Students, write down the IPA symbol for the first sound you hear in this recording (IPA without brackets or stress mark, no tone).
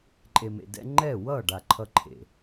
ǃʼ